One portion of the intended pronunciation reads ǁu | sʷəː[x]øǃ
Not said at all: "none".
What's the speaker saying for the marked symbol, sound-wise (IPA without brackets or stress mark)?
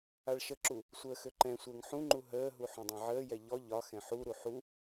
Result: x